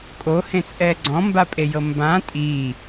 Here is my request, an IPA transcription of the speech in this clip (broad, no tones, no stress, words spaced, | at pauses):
kʼohẽt͡sʼɛ ɡ͡ǀɔ̃mbapʼejɤ mbã tʼi